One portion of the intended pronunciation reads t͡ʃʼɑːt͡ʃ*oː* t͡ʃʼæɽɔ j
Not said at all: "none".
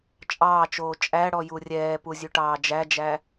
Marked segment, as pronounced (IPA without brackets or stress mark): oː